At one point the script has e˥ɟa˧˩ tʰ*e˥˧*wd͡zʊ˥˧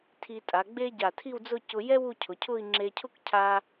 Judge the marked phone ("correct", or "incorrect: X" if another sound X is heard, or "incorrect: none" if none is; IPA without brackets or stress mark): incorrect: i˥˧